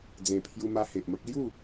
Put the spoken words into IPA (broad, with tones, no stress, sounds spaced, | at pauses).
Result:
d͡z ẽ˨˩ pʰ j u˧ m a˧ h e˨ ʔ m ə˦ k̚ l j u˥˧